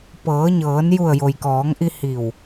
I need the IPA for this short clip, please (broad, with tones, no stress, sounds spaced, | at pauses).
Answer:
p ɤː˩˧ ɲ ɤː˩˧ n j u˧˩ ə̯ j o˩ j k ɔː˩˧ ŋ ʔ i˧ h i˧˩ w